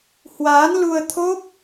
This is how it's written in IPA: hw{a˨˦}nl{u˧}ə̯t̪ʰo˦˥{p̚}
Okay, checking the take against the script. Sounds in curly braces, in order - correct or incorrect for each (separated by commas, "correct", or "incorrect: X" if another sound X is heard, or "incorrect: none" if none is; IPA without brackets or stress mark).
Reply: incorrect: aː˨˦, correct, correct